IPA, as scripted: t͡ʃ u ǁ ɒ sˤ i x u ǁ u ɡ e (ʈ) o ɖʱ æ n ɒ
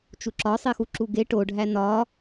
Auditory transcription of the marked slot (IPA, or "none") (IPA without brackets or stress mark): ʈ